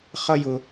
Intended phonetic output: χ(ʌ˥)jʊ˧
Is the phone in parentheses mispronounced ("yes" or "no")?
no